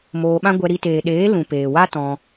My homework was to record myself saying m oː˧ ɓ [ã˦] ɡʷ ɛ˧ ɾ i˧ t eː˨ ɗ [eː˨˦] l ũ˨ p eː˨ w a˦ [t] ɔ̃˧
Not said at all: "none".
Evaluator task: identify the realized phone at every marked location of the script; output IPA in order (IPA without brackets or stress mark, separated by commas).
ã˦, eː˨˦, t